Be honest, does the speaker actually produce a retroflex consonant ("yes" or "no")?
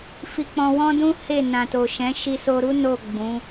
no